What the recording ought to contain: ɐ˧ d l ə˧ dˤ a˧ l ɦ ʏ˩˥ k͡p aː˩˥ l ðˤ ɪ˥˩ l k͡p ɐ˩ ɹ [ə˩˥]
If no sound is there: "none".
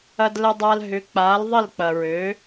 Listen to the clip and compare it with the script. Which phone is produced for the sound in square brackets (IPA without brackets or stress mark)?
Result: ø˩˥